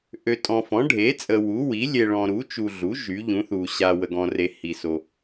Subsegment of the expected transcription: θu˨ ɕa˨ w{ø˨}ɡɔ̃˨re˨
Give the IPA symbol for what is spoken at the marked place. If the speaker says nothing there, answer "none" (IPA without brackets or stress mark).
ə˨